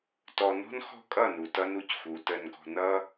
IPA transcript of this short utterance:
tɔ˨nɔ̤˦nxɔ̤˦ kʼʌ˦˨ nu˨tʌ˦nu˨cxu˨ tə˨nɡɔ̤˨nʌ˦

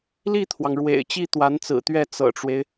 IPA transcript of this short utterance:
li˥˩t̪ʰwɑ˩ŋ ɻwḛ˨˩ɪ̯ t͡ɕi˥t̪wa˧˥nt͡sɹ̩˨˩t̪ɥɛ˥˩ t͡sɤ̰˨˩ʈ͡ʂwe˦ɪ̯

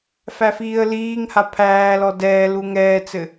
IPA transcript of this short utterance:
fæfiːə̯liːŋha pʰæːlɔ dɛːlu ŋɛːt͡sɘ

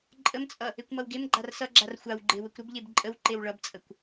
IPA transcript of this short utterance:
ǃʼəmt͡sʼʌ | ekʷmʌwɡemɡ͡ǃar sʌɡ͡ǁar xʷawɡ͡ǃe wəkʷɾəbʎeb ǃʼəw ǃewɭʌbt͡sʼəkʷ

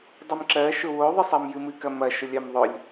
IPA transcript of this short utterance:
dˤɨmǁɜ ʃʊwo ðˤɨsˤɜmjɨmɨ kɐmɐ ʃʊlʲɜmðˤʊlʲ

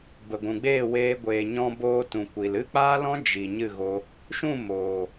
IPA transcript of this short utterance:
bə˨ɡʷũ˨ɡ͡beː˦˨weː˧ ɡʷeː˨ ɲɔ̃˦boː˦ tũ˨ kʷi˨l ɨ˦k͡paː˦lɔ̃˦ d͡ʒi˨ ɲɨ˦˨ɣo˧ | ʃũ˦˨ moː˨

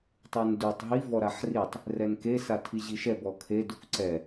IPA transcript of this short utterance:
tˤundutˤ ɦi vɔɾaħritˤ | rɛnke satʰiʑiʃɛb ɔkʰe dukǀɛ

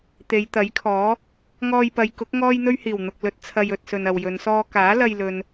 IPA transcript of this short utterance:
t̪e˨˧jt̪ɐ˨˥jkʰɔː˨˥ | ŋɔː˧jpɐ˨˧jkʊ˨˥k̚ ŋɔː˥jn̪ɵ˥ɥhiː˨˩w n̪ʊ˨k̚lɵ˧t̚ t͡sʰɐ˧jɵ˨t̚sɵ˨n ɐ˨wjɵ˨˧nsɔː˥ kaː˨˥lɐ˧jlɵ˨n

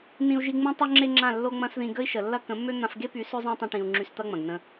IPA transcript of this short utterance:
nĩ˧u̯ʒi˧ ŋ͡mẽ˦tˤo˦ ŋ͡ǁe˦ŋ͡ǁã˦˨ lːo˧ ŋ͡mɐ̃˦sðĩ˧ ɡə˦i̯ʃə˨lːɐ˦ kə̃˨˦mːø˦ n̪ã˧fɡe˦py˨˦ sø˦zˤã˦tˤɐ̃˧ʈĩ˨u̯ ŋ͡ǁy˧st̪ɐ˦ŋ͡mɐ̃˨ɡ nə̃˧

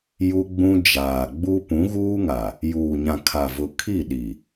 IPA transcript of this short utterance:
ju˦ɡ͡bũ˦ d͡ʒaː˨ɡ͡bu˦ pũ˨˦ɣuː˦ŋa˨ | juː˨ɲã˨kʰa˨vʊ˨ kʰi˦˨ɗi˨

